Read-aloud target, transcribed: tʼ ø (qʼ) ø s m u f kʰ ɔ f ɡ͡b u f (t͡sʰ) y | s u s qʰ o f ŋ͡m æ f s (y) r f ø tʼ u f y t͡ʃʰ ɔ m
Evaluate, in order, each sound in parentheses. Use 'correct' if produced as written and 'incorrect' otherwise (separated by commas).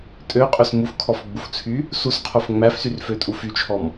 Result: correct, correct, correct